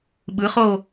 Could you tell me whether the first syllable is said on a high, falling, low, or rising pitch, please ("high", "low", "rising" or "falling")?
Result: rising